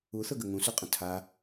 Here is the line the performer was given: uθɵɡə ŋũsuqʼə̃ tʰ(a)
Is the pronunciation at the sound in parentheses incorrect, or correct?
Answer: correct